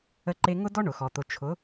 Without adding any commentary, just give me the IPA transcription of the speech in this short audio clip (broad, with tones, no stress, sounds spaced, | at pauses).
ə˧ ǃ e˧ ŋ ʊ˦ d ɔ˦ ɳ ʊ˨ x ɔ˨ t̪ ʊ˧ t͡ʃʰ ʊ˨˦